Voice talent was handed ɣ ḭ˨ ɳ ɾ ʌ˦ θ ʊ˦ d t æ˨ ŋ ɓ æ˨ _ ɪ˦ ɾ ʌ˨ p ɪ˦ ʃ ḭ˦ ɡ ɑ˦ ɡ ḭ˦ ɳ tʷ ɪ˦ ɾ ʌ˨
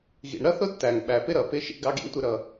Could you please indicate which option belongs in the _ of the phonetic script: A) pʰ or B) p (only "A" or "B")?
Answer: B